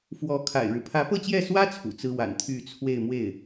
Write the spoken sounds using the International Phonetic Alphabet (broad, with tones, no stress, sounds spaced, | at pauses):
f w ɔ˧˥ kʰ a̰˨˩ ɪ̯ ɻ ɻ̩˦ pʰ ä˧˥ p ɤ˥˧ t͡ɕ j ɛ˥˩ s w ä˥ t͡sʰ ṵ˨˩ t͡s ɹ̩˥ w a̰˨˩ n t̪ʰ y˥˧ t͡sʰ w e˥˧ ɪ̯ m w e˥˩ ɪ̯